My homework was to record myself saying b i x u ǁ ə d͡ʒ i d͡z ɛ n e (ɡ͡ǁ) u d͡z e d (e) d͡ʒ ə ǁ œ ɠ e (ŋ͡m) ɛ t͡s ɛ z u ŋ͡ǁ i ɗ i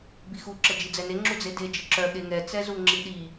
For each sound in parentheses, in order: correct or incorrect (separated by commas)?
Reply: incorrect, correct, incorrect